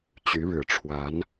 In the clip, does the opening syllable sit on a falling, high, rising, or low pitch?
rising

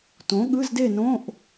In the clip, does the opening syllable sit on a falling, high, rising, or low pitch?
rising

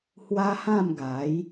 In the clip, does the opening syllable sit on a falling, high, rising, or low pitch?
high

